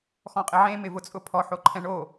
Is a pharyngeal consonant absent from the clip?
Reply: no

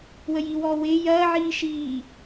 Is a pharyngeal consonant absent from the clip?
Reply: no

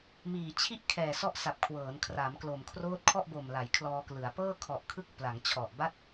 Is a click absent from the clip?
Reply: yes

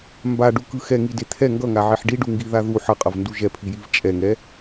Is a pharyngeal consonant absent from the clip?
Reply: no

